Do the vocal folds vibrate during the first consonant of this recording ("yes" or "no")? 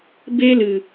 yes